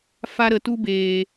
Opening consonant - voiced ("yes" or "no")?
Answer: no